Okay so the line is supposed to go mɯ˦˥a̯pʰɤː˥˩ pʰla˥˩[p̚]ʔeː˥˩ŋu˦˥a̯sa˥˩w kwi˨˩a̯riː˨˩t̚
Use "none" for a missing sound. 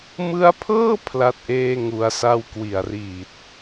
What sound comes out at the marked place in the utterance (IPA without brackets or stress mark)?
t̚